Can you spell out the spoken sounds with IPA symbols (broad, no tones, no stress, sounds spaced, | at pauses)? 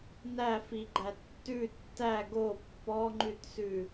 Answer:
n æ f i ɡ͡ǃ æ tː ʉ tː æ ɡ o pː ɔ ŋ͡ǃ ʉ t s ʉ